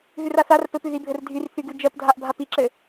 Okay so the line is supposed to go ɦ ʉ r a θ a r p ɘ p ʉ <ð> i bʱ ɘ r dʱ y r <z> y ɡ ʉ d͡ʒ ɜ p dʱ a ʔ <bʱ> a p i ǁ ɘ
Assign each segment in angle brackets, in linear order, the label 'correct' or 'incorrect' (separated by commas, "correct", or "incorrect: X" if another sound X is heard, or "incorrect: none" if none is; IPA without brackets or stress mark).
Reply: correct, incorrect: θ, correct